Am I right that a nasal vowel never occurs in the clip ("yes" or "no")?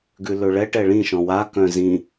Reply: no